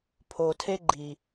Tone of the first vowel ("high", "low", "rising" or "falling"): low